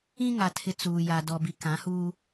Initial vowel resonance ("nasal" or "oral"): nasal